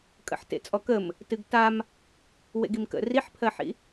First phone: kʼ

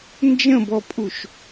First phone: n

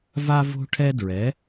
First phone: v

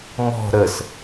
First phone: m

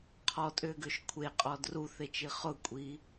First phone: qʰ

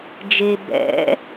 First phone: d͡ʒ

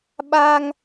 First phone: ɓ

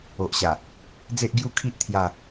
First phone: o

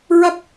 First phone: ɹ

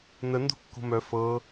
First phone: n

